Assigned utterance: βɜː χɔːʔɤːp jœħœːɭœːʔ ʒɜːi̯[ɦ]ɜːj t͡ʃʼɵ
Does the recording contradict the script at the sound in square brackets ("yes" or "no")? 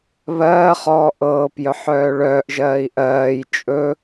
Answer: yes